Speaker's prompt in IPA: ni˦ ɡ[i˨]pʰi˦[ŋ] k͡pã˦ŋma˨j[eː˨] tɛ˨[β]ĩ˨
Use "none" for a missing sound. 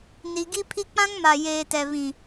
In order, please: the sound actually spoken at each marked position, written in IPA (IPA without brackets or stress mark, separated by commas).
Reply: i˦, none, eː˨, β